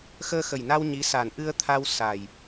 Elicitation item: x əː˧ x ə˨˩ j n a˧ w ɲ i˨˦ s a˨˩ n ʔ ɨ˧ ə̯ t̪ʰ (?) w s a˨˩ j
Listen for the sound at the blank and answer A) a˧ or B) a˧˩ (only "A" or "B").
A